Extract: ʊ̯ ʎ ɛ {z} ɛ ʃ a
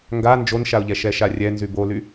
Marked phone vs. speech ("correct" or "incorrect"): incorrect